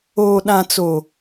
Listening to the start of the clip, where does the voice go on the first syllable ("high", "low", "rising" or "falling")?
low